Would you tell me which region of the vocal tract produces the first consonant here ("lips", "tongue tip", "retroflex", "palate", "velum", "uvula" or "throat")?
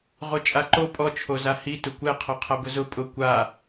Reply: uvula